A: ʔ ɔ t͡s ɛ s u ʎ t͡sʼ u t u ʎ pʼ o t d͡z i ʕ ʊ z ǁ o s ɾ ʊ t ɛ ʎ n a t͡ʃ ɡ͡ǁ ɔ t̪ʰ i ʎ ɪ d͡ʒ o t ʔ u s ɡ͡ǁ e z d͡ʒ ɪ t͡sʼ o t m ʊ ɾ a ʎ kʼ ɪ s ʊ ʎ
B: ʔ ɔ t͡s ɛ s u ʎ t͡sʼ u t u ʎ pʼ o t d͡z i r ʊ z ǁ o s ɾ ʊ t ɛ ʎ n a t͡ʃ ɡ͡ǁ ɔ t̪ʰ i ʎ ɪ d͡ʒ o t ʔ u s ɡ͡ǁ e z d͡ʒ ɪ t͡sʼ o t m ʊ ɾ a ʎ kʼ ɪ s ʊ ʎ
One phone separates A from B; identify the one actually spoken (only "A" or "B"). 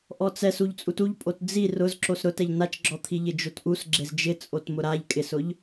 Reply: B